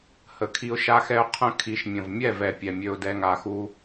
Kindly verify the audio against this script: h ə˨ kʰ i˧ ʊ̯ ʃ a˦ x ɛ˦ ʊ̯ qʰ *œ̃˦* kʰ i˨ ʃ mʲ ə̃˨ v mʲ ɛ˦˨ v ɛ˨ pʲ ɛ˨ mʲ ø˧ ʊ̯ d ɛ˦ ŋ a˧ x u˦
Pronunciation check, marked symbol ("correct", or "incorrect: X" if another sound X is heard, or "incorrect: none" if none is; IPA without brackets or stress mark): incorrect: ə̃˦